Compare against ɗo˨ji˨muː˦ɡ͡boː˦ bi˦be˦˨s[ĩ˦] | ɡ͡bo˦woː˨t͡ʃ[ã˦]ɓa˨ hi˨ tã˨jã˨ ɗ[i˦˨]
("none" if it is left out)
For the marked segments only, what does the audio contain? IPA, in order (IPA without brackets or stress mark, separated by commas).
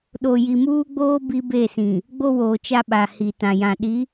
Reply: ĩ˨, a˦, i˨˦